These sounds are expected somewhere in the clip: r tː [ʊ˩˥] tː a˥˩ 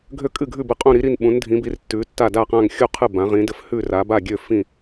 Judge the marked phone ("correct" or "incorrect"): incorrect